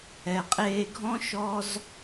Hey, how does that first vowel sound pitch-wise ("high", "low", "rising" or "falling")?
low